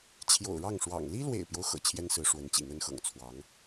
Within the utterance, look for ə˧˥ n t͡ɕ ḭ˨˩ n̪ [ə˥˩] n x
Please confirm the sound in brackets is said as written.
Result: no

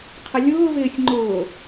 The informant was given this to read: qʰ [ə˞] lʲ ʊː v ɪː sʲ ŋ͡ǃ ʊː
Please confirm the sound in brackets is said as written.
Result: no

